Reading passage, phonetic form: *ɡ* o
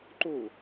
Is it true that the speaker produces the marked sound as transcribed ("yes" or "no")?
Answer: no